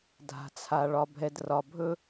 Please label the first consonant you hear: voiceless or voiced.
voiced